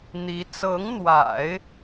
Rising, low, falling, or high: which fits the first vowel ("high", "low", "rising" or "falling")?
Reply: rising